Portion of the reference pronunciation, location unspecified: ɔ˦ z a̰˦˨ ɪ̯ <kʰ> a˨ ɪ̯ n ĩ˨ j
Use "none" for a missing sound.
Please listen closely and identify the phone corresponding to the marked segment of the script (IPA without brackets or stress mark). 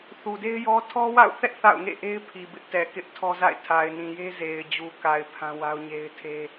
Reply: tʰ